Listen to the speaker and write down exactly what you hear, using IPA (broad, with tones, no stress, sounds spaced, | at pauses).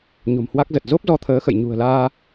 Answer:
ɲ o̤˨˩ m h w a˦˥ k̚ z ə˨˩ t̚ z o˦˥ p̚ z ɔ˧ t̪ʰ əː˨˦ x ə̰˧˨ j ɲ ṳ˨˩ ə̯ l aː˧